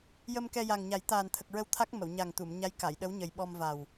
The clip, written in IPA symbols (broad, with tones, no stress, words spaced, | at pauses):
jə˧mkɛ˧ja˨˩ŋɲa˨˩˦j t̪aː˨˩nt̪ʰə˨˩k̚ɹə˧w t̪ʰa˦˥k̚mə˨˩˨wɲa˨˩ŋ t̪u˨˩˨mɲa˧˥j ka˨˩˨jɗə˧˥wɲə˨˩j ɓɔ˧mva˨˩w